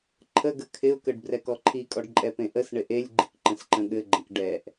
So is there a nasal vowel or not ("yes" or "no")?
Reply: yes